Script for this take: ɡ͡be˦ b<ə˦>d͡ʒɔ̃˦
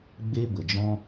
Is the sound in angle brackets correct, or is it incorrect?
incorrect